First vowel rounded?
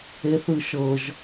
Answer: no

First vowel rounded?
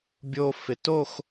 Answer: yes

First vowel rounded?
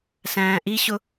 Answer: no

